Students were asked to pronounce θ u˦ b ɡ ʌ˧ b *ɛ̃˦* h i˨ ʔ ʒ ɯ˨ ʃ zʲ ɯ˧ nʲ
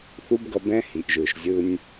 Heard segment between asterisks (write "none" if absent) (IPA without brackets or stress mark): ɛ̃˦